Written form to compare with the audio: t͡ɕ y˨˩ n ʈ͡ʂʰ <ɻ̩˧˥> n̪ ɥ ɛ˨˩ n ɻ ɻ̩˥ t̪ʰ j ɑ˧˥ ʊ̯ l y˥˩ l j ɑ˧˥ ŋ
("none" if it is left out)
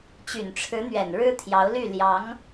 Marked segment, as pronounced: ɻ̩˧˥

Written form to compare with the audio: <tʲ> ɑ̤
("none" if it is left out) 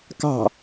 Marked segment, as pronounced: k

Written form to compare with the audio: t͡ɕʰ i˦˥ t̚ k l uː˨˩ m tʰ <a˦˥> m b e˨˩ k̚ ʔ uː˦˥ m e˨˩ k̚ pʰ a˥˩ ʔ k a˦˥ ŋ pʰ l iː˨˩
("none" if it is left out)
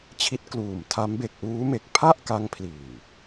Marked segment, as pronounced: a˦˥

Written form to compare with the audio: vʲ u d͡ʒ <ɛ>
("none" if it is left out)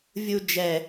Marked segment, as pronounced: ɛ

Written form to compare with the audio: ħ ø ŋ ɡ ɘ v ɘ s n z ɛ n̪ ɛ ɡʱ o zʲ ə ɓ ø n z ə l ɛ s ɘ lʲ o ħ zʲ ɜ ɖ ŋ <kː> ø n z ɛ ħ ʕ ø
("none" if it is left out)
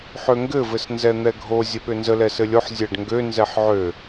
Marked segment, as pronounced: ɡ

